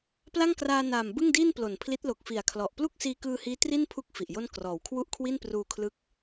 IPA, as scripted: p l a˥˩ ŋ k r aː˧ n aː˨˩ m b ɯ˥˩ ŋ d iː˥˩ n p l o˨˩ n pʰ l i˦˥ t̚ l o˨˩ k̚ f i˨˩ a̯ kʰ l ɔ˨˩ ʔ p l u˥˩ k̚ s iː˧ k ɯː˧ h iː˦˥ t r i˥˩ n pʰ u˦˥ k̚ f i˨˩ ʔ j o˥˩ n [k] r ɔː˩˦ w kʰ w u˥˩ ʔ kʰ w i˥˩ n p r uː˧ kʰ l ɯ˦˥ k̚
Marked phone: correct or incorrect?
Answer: correct